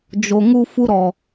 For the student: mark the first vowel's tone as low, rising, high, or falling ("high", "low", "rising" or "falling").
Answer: low